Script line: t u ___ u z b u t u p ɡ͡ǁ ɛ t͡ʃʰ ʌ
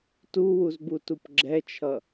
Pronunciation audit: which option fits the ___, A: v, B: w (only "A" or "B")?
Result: B